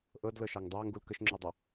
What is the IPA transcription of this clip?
ʔɤdlɤʃɑŋ dˤɑŋɡul kəʃŋ͡ǁodˤœ

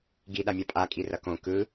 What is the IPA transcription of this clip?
ɡiɗamʲa pʼakʼi rʌkõ kɯ

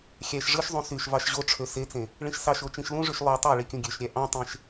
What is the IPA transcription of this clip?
xʲæʃ ʐɯʃzˤũ syʃvɑʃ ʑo ʈ͡ʂʰøset͡sẽ | ɭĩʃsɑʃo t͡ʃĩʃlũʐyʃ lˠo tˤæɭi kʲũɡʲøʃɾʲæ ʔɑ̃tˤẽʃ

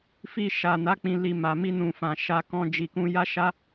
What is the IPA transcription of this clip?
fi˧ʃa˨na˨˦ k͡pĩ˧li˧ma˨ mi˧nũ˨ fã˨ ʃa˧ kɔ̃˧d͡ʒi˨kũ˧ ja˦ʃa˦

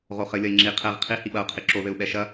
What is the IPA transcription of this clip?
ʁoχɘ lʲɐi̯ŋ͡ǁi qʰɛʁ qʰi hiɓɐu̯ qʰiǁo ðɘu̯ɓɛʃɐ

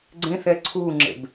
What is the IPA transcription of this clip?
ɡ͡ǀẽθɛ ǀʰuŋ͡ǁḛb

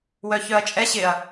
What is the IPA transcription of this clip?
wœçœɐ̯t͡ʃʼɛ ɕɪɐ̯

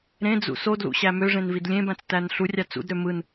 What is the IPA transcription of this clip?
ɾẽd͡zṵ sodlṵɕæ møʐẽnvid lʲẽbæ̃t͡stæn ɬurʲɑ t͡sṵdɾø mɯn

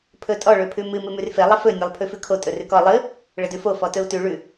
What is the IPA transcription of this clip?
pʰɵtʼɔ ɭɵpʰʉmɨ mɨmʉrfe lˠəfɵ nʲelˠpʰʉfʉkʰo tʼɵrʉkɔ lˠɨ | ɭədʉfo fɔtɵu̯tʉ ɭʉ

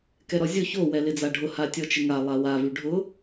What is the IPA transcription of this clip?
kɛɾɔzʲo ço wɛlɪd͡zaɖʱʊ hatʲɔt͡ʃɪŋa lˠawa vyɖʱʊ

